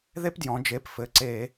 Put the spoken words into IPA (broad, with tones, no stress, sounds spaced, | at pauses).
ð e˥ p d j ɔ̃˩˧ d͡ʒ e˩˧˩ p f ɘ˩˧˩ ǀ e˧˩˧